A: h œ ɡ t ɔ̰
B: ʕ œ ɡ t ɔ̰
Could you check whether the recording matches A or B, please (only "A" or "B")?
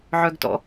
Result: B